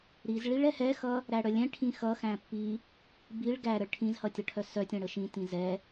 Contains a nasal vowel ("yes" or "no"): yes